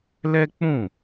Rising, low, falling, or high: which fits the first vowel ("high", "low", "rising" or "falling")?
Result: high